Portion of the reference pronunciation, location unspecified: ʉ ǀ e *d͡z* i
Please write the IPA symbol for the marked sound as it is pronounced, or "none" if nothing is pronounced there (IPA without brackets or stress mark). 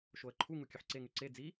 d͡z